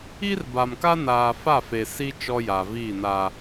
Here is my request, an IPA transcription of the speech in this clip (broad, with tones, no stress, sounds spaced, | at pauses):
i˦ r b a˨ m k a˦ n aː˨ f a˦˨ f e˨ s i˦ t͡ʃ ɔ˦ j a˨ v iː˦˨ n aː˦